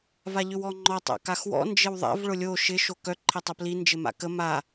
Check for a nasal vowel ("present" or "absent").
absent